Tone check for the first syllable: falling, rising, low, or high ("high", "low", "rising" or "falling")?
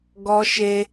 high